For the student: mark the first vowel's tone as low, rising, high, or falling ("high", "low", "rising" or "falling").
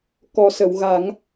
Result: low